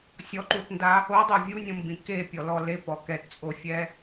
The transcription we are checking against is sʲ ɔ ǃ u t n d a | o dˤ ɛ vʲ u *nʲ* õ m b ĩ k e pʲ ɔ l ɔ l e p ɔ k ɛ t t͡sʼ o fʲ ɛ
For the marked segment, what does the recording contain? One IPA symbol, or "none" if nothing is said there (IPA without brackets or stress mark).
nʲ